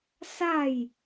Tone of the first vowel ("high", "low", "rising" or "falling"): falling